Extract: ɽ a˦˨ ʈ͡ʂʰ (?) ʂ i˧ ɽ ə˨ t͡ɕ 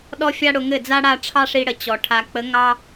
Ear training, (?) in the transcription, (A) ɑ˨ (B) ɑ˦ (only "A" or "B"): B